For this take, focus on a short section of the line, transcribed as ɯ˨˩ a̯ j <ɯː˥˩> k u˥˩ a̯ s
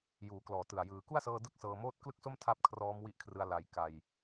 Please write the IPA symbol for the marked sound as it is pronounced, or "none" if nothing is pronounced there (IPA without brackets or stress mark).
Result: ɯː˩˦